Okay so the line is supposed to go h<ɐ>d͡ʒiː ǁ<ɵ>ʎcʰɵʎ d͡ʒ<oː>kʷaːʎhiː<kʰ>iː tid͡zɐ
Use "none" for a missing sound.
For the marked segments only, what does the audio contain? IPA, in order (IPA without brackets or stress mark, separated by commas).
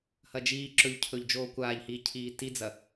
ɐ, ɵ, oː, cʰ